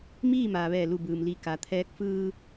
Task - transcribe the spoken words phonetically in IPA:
m iː˥˨ m aː˩ ʋ ɛː˧˩ l u˧˩ b ɯː˩ m l i˧˩ k a˩ t̪ʰ ɛː˧ k̚ f ɯː˧

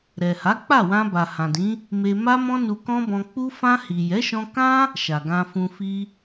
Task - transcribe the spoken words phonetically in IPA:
ɾ ɛ˨ h a˨˦ k͡p a˦˨ w ã˧ b a˨ h ã˨ d ĩ˨˦ | m e˧ m a˦ m ɔ̃˦ n u˧ k ɔ̃˦ b ɔ̃˧ k͡p u˧ f ã˧ h i˨ j ɛ˨˦ ʃ ɔ̃˧ k ã˦ | ʃ a˨ ɡ ã˧ f ũ˧ f i˦

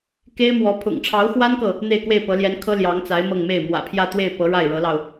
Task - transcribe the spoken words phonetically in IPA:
k e˥ ɪ̯ m w ɔ˧˥ pʰ ʊ̰˨˩ ŋ ʈ͡ʂʰ ɑ˧˥ ʊ̯ x w a˥ n k ɤ˨ | n̪ e˥˧ ɪ̯ k w e˥˩ ɪ̯ p ɤ˧˥ l j ɛ˧˥ n kʰ ɤ˥ l j ɑ˧˥ ŋ t͡s a˧˥ ɪ̯ m ɤ˥˧ ŋ m e˥˩ ɪ̯ m w ä̰˨˩ pʰ j ä˥˧ t̪ w e˥˩ ɪ̯ p ɤ˧˥ ɻ a˥˩ ɪ̯ ɻ ɤ˧˥ l ɑ˧ ʊ̯

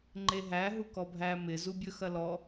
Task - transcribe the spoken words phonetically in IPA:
ŋ͡ǃ e ɦ æ ɦ u k ɔ bʱ æ m ɪ z u bʲ ɵ x ɐ l ɔ

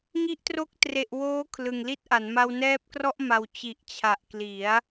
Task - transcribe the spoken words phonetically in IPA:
ŋ i˦˥ ʔ t r o˦˥ k̚ t r e˨˩ ʔ w oː˦˥ kʰ l ɯ˨˩ ŋ l i˥˩ t̚ ʔ a˩˦ n m a˧ w n ɛː˦˥ p̚ k r ɔ˥˩ ʔ m a˨˩ w t͡ɕ i˨˩ ʔ t͡ɕʰ a˨˩ ʔ k l i˩˦ a̯

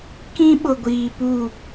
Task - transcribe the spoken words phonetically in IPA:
k ĩ˦ ɓ ʊ˨ ɡʷ iː˨ p u˦˨

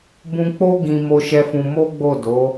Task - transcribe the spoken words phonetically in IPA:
b ũ˧ k͡p o˦ ɡ ĩ˧ m o˦ ʃ ɛ˦ f ũ˧ m o˦ ɡ͡b o˦˨ d o˨˦

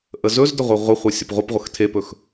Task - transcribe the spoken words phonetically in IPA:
ʔ ə z ɵ z d ə ʁʷ e ʁʷ ə χʷ e sʲ ɵ p ʁʷ ə p ʁʷ ə x tʰ e p ɵ x

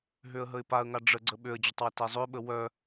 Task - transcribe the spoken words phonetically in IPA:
ɦ ø ə̯ ɦ ə ɪ̯ p a ə̯ ŋ a ɖ͡ʐ ə ɡ͡ǀ ə ɓ ø ə̯ d͡ʑ ə tˤ w ə t ɛ zˤ ø ɓ ə w œ

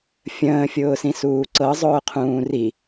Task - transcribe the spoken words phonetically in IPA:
fʲ ə̃ː fʲ ʊː s ĩ s uː ǀ ɤ zˤ ʊː qʰ ũː r i

